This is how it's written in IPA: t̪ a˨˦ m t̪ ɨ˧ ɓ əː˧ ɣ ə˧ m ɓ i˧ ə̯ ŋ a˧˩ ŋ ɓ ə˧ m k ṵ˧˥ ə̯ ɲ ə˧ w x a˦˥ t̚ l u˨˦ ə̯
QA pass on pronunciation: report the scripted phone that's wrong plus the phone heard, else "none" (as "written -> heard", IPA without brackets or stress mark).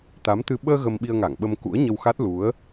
none